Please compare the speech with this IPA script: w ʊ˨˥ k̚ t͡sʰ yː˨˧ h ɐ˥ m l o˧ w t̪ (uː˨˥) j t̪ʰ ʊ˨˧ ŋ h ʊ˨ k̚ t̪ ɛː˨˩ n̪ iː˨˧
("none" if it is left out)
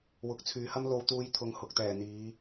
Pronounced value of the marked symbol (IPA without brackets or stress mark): uː˧